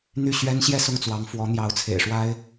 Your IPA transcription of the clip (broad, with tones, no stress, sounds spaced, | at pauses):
n̪ y˥˩ ɕ ɥ ɛ˥ n ɕ j ɛ˥˧ s ʊ˥˩ ŋ t͡s w ɑ˧˥ ŋ f w ɔ˧˥ n̪ j ɑ˧˥ ʊ̯ t͡sʰ ḛ˨˩ ɪ̯ ʂ w a˥ ɪ̯